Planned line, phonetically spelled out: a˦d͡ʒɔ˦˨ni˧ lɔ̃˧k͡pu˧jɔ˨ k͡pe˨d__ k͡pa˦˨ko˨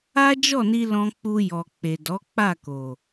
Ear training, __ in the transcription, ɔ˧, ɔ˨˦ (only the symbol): ɔ˨˦